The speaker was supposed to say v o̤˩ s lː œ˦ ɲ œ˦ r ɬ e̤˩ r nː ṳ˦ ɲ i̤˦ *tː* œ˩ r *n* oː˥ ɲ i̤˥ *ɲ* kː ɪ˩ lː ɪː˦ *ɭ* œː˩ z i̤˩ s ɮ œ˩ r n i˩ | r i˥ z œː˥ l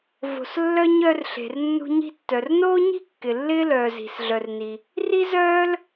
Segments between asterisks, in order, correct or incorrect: correct, correct, incorrect, incorrect

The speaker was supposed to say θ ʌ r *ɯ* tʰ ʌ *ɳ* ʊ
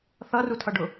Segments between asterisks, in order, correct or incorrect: incorrect, incorrect

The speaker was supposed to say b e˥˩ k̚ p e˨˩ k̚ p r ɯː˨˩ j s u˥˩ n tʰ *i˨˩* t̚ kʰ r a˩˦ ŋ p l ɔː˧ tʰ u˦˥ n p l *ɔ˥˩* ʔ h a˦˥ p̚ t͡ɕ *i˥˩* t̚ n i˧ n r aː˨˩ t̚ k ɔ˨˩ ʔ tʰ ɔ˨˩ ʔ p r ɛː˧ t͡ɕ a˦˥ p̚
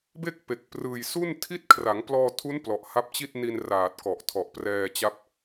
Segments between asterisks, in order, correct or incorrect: incorrect, incorrect, correct

